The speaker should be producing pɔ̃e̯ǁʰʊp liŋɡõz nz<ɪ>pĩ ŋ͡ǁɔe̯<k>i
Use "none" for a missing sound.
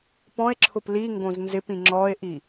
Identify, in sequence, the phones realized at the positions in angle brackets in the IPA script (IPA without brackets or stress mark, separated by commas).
ɪ, ʔ